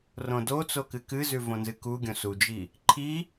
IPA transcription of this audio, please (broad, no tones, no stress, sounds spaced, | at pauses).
r õ d o t͡s o k ɨ k ɨ z ʉ v õ n z ɨ k u ɡʲ õ s u d͡ʒ i | ǃʰ i